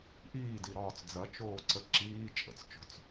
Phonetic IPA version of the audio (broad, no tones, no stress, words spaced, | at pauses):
ʔiːdiɾɒːt͡s d͡zɐt͡ʃoːǀə ǁiː t͡ʃʼə̰t͡st͡ʃo̤t͡s